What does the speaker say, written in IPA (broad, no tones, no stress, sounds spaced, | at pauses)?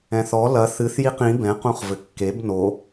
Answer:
ɛ̃ θ ɔ l ɐ θ ɨ θ j i q ĩ b ɛ̃ q ũ χ v ɘ kː e b n o